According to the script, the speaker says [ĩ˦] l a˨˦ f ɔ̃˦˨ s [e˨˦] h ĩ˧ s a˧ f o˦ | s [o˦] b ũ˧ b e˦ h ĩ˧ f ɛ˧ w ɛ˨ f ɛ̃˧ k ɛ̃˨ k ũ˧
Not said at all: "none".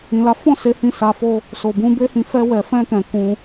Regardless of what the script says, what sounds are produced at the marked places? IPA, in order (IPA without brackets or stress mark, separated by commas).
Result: ĩ˨, e˨˦, o˨